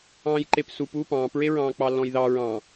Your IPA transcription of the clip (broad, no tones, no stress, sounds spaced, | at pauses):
ɑ̃ː j ǃ e p s u p uː p ɑ̃ː p ɹ e ɹ ɑ̃ː k͡p ɑ lː ɔ̃ j ð ɑ ɹ ɑ̃